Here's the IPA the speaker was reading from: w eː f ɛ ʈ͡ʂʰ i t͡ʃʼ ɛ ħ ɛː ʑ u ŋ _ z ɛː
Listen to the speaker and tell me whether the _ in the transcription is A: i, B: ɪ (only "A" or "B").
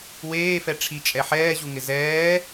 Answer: B